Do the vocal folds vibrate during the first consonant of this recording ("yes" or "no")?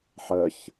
no